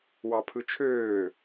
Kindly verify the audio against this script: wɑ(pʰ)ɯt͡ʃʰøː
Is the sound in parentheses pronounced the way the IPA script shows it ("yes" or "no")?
yes